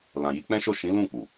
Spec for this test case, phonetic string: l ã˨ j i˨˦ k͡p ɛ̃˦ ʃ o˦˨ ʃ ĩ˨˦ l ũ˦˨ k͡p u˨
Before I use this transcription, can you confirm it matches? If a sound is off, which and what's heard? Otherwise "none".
none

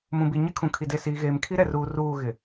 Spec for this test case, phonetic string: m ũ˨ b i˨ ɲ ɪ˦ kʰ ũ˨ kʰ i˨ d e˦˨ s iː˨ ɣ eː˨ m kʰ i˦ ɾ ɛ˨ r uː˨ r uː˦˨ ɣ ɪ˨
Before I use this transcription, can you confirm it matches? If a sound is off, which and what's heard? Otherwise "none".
none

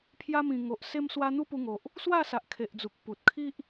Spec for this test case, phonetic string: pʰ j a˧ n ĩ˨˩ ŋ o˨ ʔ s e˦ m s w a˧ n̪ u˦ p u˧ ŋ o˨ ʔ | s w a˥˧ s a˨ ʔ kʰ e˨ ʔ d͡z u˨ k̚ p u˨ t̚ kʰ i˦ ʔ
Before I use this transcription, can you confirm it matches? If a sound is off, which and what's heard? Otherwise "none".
n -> m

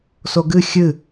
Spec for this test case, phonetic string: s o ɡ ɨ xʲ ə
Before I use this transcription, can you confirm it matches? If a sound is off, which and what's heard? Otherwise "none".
ə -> ɨ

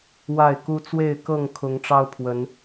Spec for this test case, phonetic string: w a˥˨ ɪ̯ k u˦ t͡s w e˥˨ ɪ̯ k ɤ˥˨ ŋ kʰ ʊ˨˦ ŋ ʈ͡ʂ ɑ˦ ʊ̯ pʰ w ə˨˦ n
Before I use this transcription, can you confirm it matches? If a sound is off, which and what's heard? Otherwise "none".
none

